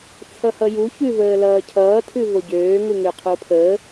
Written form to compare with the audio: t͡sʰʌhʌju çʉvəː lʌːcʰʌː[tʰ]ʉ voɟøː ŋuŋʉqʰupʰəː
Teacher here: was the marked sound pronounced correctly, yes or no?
yes